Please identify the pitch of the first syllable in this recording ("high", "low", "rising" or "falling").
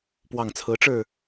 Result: low